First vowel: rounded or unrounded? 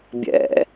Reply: unrounded